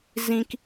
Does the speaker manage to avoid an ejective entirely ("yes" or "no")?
yes